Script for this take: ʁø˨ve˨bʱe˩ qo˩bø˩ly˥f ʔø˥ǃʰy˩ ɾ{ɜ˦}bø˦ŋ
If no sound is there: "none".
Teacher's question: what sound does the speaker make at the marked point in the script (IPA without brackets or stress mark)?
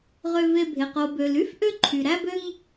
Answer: æ˦